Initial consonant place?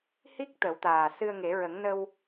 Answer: glottal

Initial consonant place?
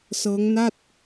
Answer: alveolar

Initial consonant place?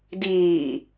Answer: alveolar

